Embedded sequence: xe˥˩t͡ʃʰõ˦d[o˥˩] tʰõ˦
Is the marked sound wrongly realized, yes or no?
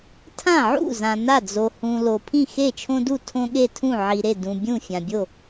yes